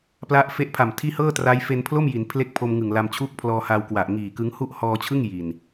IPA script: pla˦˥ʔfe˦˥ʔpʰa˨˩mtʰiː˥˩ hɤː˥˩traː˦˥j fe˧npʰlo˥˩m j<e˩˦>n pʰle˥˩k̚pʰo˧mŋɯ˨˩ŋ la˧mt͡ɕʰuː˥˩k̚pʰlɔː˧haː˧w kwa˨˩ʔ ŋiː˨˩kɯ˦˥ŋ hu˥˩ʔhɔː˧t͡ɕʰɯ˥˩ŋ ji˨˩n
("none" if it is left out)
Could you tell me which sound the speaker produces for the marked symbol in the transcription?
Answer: i˩˦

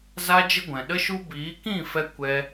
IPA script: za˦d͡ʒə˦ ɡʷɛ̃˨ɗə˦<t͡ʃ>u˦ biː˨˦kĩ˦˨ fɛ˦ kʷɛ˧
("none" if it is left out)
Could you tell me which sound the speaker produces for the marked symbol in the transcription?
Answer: ʃ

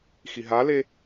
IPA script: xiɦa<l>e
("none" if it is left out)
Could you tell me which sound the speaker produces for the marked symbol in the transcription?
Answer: l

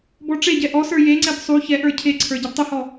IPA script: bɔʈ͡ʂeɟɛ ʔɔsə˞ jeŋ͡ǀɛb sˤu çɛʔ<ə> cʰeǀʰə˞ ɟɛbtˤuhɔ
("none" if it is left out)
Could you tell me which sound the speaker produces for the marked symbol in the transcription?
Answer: ə˞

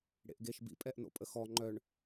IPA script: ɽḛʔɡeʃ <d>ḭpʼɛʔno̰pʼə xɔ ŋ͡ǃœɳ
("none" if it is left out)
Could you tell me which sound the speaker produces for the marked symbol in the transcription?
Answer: b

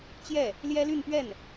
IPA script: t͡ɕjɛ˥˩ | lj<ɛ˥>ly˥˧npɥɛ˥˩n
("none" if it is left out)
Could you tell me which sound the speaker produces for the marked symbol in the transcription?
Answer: ɛ˥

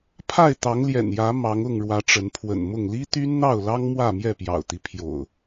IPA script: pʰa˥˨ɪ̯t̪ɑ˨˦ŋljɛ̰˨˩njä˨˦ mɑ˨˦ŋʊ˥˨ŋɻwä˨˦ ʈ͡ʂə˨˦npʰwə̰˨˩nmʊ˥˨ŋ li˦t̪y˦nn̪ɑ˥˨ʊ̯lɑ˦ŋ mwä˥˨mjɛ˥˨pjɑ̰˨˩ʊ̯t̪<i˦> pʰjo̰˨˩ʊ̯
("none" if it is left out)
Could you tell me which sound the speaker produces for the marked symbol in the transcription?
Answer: i˦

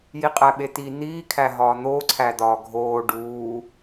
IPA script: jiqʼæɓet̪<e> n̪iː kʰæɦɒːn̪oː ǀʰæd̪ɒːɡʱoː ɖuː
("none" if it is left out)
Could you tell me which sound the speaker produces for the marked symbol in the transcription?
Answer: i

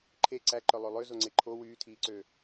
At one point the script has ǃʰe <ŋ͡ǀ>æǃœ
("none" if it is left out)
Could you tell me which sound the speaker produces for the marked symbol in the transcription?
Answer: ǀ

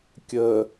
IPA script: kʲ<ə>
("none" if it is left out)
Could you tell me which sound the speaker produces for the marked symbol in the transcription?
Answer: ə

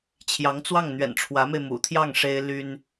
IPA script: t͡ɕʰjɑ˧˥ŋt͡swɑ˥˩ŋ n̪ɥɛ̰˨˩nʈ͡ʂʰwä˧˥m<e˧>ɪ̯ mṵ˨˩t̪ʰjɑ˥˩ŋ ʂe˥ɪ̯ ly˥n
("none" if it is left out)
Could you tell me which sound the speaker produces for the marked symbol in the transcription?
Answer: e˧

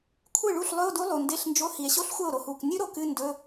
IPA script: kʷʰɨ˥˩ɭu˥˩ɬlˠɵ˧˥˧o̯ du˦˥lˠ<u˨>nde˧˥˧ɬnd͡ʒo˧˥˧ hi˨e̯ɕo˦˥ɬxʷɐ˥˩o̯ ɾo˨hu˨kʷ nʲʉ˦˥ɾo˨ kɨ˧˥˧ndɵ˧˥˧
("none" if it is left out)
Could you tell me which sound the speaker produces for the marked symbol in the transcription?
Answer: u˨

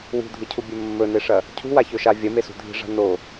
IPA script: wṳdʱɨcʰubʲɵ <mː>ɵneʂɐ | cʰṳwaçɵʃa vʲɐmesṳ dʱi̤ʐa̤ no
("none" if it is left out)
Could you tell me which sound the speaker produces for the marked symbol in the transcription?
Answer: mː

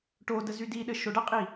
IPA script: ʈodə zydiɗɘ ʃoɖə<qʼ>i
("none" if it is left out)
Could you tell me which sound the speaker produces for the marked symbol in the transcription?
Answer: qʼ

